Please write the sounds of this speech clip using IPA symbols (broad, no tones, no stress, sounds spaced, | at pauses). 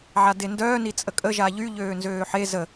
ʕ a d e n d œː n i t͡sʼ ə kʼ ə ʒ a ʎ y ʎ øː n z øː ħ e z ə